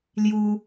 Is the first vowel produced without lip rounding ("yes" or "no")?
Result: no